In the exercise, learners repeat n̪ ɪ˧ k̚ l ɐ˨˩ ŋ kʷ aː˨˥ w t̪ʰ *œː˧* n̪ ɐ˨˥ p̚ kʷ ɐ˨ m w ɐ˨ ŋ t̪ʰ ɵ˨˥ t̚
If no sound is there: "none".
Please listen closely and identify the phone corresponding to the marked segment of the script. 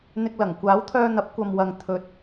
œː˧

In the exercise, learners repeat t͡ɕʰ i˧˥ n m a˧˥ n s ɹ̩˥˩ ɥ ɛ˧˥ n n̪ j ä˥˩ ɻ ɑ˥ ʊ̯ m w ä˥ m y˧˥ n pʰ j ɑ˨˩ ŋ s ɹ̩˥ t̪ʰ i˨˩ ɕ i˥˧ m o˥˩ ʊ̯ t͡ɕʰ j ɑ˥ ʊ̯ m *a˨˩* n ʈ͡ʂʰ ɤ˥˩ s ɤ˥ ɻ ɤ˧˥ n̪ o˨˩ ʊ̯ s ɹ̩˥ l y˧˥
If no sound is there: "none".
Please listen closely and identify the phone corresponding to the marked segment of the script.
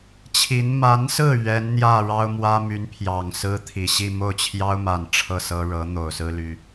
a˨˩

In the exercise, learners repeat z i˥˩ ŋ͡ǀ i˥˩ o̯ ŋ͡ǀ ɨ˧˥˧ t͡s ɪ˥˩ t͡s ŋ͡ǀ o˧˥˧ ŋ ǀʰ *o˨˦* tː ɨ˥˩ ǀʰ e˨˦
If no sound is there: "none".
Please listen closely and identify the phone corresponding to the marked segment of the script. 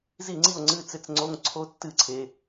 o˦˥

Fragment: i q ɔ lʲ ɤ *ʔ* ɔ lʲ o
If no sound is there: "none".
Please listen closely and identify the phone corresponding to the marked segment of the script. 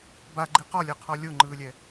qʰ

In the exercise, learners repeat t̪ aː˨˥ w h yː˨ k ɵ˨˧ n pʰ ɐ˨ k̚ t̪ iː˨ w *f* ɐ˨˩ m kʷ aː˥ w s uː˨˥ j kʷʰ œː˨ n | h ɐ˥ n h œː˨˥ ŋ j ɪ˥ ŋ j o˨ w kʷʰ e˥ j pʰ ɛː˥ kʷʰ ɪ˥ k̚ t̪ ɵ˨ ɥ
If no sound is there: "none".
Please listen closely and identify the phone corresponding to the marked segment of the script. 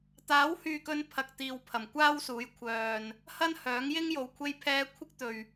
pʰ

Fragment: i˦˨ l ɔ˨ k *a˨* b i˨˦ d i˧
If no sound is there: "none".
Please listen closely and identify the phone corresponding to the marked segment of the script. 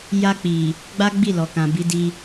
ã˨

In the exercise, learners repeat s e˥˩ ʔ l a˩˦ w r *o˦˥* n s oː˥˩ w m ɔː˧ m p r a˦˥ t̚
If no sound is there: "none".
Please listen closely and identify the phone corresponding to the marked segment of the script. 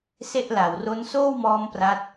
o˦˥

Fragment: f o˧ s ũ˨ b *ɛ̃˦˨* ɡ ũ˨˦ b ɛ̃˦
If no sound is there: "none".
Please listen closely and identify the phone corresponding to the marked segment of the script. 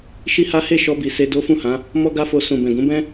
ɛ̃˨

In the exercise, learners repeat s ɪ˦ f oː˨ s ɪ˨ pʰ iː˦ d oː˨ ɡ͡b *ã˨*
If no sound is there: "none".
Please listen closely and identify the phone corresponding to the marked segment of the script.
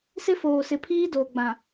ã˨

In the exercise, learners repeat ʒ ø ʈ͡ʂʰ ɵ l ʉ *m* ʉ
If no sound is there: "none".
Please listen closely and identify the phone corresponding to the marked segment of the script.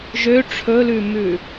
m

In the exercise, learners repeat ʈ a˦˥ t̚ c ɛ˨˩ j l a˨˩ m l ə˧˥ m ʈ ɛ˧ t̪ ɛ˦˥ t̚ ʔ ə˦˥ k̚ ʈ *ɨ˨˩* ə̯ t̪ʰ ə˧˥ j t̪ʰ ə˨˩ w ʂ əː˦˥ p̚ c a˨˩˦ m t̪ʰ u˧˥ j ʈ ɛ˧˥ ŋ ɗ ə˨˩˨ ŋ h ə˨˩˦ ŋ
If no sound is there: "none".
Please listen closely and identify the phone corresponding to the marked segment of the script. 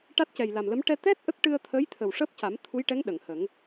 ɨ˧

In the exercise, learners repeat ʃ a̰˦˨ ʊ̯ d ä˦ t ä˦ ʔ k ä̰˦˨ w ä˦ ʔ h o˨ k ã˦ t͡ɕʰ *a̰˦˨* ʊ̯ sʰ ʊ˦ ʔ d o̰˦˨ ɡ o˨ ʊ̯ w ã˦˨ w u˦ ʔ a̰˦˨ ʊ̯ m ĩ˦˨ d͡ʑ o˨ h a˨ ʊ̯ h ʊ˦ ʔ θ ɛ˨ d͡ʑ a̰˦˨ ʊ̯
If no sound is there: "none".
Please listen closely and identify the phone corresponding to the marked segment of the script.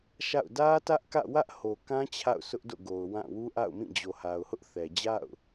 a̰˦˨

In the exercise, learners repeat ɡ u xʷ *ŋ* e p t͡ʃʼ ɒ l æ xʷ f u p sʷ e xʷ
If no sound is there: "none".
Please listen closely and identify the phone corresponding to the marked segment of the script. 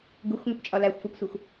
ŋ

